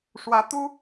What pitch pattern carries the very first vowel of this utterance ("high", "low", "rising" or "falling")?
rising